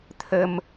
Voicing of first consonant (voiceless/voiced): voiceless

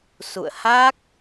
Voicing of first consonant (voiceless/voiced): voiceless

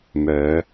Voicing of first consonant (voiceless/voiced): voiced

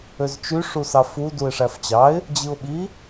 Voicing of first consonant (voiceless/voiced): voiced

